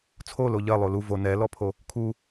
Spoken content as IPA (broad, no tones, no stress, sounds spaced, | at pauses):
t͡sʰ o l o ʎ ɜ lˠ o l u v o n ɛ l ɔ pʰ o | kʰ u